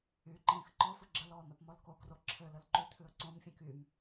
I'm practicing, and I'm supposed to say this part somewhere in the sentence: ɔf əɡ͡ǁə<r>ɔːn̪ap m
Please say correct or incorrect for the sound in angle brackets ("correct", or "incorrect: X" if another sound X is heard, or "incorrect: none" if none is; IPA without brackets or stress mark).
incorrect: l